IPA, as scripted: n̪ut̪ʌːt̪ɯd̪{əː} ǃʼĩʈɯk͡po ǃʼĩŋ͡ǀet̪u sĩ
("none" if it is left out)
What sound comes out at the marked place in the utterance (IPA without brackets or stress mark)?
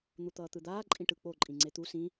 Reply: aː